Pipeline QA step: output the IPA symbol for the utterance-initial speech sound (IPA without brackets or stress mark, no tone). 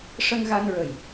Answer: ʂ